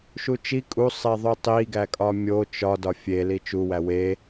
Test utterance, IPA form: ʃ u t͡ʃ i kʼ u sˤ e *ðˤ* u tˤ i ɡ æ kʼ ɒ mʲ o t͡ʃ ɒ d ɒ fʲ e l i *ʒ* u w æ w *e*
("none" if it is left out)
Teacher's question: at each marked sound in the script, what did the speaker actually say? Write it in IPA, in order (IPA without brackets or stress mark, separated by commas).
ðˤ, t͡ʃ, e